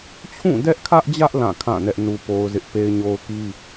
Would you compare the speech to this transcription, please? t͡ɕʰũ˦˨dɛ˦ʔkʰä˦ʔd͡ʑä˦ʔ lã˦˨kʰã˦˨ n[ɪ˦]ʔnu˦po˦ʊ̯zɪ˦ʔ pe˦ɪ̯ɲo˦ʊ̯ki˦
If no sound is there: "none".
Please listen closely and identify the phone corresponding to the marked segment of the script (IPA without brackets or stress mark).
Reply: ɛ˦